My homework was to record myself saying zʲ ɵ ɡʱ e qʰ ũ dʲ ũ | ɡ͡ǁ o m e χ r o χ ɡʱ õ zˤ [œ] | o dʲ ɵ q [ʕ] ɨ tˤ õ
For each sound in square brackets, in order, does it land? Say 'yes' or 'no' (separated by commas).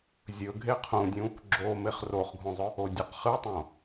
no, no